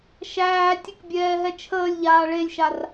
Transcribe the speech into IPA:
ʃ æː tʲ ə k bʲ ɛː ɦ ɛ t͡ʃʰ əː lʲ ʎ aː ɭ e lʲ ʃ a r

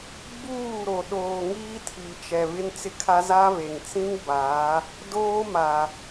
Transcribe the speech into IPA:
ɡ͡b uː˦˨ ɾ o˨ ɗ oː˨ ŋ iː˦ tʰ i˨ t͡ʃ ɛ˨ β ɪ˦ n t͡s ɪ˦ kʰ a˦ z a˦ β e˨ ŋ t͡s ĩ˦ ŋ b aː˨˦ | d oː˦ m a˨

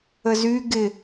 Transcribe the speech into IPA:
ə z y ɡ ɪ

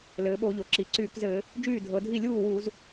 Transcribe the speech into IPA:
l ɘː˩˧ ɓ o˧˩˧ ʎ o˩ ǁ i˩ ǀ yː˧˩˧ k z ɘː˧˩˧ | d͡ʒ yː˥˩ dʱ ɤ˩˧ dʱ i˥˩ lʲ uː˥˩ w uː˧˩˧ z

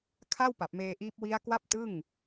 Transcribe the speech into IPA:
kʰ a˥˩ w p a˨˩ p̚ m eː˧ ʔ iː˦˥ p̚ w i˦˥ a̯ k w a˥˩ p̚ t ɯ˥˩ ŋ

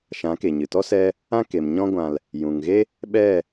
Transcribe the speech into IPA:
ʃ ã˨˦ k e˨ ɲ ɨ˨ t ɔ˦ s ɛ˦ | ã˦ k e˨ m ɲ ɔ̃˧ ɡʷ ã˨ l | j ũ˨ ŋ ɣ e˦ | ɓ ɛ˦˨

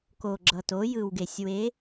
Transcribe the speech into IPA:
k o˩ ɡ͡ǁ ʌ˩ t o˩˧ j ɯ˩ w ɡ e˩ sʲ w e˩˧

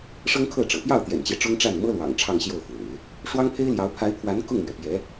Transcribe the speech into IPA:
ʂ ɤ˥ ŋ kʰ ɤ˥˩ ʈ͡ʂ ɤ̰˨˩ p j ɑ˥˩ ʊ̯ t̪ j ɛ̰˨˩ n t͡ɕ j ɛ˦ ʈ͡ʂ ʊ˥ ŋ ʈ͡ʂ a˥˩ n m ɤ˥ l w ɑ̰˨˩ ŋ ʈ͡ʂʰ ɑ˥˧ ŋ ɕ j o˥˩ ʊ̯ f w ḛ˨˩˦ ɪ̯ | ʂ w ɑ˥ ŋ pʰ e˥ ɪ̯ l j ɑ˧˥ ʊ̯ pʰ a˧˥ ɪ̯ pʰ w a˧˥ n k ʊ˥˩ ŋ m ɥ ɛ˩ p j ɛ˧˥

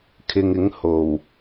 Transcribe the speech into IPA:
kʰ ɪ˨ ŋ ɪ˨˥ ŋ h o˨˩ w

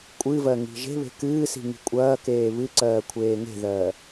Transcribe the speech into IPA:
kʷʼ ɨ v ɜ ŋ i̤ ʒ e̤ β e̤ k ɨː s i̤ ŋ i̤ kʷʼ ɐː k eː β ɨ ǀ ɜː kʷʰ eː ŋ e̤ ð ɜː

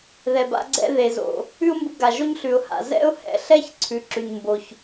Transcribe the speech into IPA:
ð ɛ˩ b a̰˧ ɡ͡ǀ ɛ̰˧ ð e˩ z o̰˩ | ʉ˥ ʊ̯ m b u˧ ɡ a˩ ʒ o˥ ɲ ɬ ʉ˩ ʊ̯ h a̰˩ z ɛ̰˥ ʊ̯ h ɛ̰˧ ɬ ɛ˥ ç ǀʰ ʉ˩ ǁ ʉ˩ ɲ m b o˩ ç

